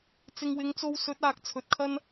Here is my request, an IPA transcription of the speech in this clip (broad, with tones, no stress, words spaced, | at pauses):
t͡sɪ˨ŋwɪ˨˧ŋt͡so˧w sɵ˨˥t̚aː˨k̚ t͡sʰɵ˨˥t̚kʰɐ˥n